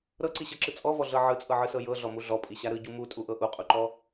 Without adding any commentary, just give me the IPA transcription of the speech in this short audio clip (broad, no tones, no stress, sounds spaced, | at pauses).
ɾ ɤ ǀ i ɕ ɤ ǁ ɯ t͡sʼ ɔ v ɔ ɮ ɤ ʕ ɯ t͡sʼ ɤ ʕ ɯ s ɤ j ɤ ɮ ɔ m u ɮ ɔ pʼ i ɕ a ɾ ɯ ɟ u m u tʼ u ʔ ɤ ʔ u qʼ u ǃ ɔ